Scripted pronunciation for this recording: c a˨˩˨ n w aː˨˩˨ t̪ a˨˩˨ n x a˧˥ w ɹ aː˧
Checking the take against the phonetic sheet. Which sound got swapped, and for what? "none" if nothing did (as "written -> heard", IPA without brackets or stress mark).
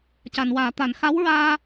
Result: none